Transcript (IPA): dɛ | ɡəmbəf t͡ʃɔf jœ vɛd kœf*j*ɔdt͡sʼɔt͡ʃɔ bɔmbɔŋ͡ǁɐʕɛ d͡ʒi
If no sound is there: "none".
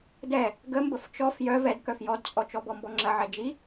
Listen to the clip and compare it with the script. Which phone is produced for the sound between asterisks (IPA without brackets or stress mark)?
j